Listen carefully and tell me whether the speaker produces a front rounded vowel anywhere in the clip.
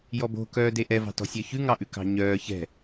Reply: yes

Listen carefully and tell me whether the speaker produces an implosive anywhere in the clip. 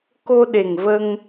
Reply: yes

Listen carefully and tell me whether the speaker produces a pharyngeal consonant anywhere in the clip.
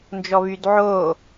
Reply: yes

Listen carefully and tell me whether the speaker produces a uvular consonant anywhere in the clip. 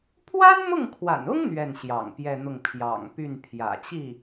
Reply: no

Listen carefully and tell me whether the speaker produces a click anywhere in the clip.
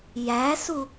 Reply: no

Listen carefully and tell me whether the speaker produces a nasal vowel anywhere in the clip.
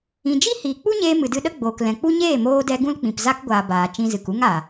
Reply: yes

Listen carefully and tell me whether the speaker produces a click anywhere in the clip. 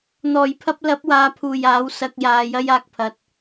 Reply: no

